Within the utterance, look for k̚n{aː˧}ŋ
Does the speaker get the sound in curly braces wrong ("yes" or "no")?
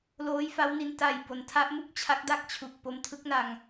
yes